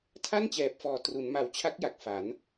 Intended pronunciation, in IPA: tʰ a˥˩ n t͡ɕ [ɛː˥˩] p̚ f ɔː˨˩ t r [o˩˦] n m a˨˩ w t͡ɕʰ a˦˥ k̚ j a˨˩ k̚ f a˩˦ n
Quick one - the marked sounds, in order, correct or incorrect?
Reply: incorrect, incorrect

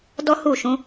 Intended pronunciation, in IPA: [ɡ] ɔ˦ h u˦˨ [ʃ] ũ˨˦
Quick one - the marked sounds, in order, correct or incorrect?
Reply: incorrect, correct

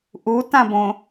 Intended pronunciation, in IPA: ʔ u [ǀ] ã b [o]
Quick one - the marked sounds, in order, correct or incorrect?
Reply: incorrect, incorrect

